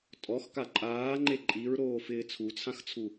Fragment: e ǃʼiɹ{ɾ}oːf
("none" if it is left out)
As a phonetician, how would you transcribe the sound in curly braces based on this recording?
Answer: ɾ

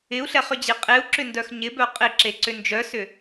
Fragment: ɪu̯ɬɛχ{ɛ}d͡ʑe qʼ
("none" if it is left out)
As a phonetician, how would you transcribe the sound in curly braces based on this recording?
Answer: ʏ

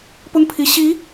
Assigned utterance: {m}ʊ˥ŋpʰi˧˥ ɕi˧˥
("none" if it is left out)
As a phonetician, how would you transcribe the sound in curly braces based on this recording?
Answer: p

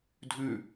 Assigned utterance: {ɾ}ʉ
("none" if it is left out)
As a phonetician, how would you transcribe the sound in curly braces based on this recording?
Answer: dʱ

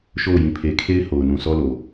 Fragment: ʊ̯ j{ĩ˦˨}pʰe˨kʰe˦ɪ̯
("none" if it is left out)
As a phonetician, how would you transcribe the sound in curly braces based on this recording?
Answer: ĩ˨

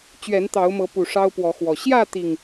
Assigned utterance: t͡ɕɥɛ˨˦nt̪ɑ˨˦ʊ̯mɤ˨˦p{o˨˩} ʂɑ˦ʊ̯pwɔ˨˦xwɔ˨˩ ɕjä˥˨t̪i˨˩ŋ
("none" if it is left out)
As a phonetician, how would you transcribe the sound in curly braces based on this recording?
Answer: u˨˩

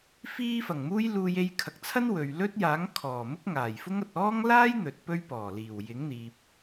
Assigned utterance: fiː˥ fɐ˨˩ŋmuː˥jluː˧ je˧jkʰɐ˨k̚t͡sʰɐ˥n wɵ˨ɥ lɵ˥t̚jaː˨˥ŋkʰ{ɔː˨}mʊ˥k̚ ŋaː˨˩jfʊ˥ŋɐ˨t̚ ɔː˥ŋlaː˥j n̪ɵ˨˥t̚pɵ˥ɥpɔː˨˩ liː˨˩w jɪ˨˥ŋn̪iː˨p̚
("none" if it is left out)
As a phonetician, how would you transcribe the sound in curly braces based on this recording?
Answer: ɔː˨˩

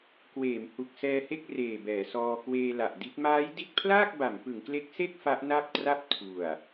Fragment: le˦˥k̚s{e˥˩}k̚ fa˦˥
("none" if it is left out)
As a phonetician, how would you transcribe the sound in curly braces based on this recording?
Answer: e˥˩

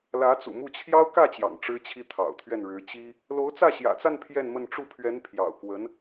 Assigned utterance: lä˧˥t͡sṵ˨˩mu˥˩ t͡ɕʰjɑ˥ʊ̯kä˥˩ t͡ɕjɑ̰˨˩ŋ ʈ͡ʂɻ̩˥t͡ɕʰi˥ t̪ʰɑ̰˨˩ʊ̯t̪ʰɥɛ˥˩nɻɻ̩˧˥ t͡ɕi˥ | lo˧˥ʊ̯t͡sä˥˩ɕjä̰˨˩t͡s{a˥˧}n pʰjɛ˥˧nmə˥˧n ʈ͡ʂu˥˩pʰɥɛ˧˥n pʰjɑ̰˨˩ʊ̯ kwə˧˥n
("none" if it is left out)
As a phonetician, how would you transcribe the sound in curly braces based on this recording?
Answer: a˥˧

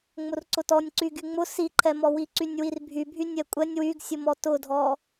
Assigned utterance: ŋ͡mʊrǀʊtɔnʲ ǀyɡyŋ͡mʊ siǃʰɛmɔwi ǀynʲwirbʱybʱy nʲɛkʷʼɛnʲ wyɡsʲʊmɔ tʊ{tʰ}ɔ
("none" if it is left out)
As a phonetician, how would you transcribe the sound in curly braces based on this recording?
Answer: dʱ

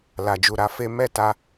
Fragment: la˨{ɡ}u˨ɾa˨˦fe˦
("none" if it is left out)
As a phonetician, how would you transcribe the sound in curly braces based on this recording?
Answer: d͡ʒ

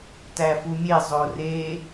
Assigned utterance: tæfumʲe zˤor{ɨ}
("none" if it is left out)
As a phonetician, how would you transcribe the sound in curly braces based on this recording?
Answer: e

